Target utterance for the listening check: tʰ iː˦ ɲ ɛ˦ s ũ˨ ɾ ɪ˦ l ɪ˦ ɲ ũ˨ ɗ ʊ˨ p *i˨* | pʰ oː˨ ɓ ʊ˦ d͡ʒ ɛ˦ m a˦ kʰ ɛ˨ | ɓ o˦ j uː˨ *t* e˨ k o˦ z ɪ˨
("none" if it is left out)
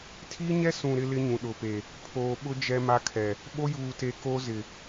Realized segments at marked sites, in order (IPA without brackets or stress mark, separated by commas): e˨, t